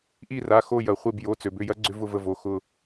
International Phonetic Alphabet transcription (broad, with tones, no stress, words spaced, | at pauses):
ʔi˦˨ra˩˧˩xo˦˨ jɐ˩χʷe˦˨bjo˩˧˩ t͡sø˩bʏ˩˧˩jɐ˦˥ ɡ͡ǀʏ˦˥vʊ˦˨və˦˨vo˩˧˩ xʊ˦˨